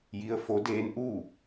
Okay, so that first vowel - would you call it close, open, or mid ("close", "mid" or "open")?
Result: close